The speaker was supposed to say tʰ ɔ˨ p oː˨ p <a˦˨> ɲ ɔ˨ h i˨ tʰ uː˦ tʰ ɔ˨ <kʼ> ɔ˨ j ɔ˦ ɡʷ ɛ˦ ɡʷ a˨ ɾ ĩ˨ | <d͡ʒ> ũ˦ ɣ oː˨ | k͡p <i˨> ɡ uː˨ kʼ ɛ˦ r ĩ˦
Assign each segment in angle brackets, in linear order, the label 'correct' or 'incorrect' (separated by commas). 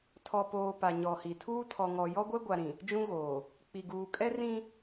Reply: incorrect, incorrect, correct, correct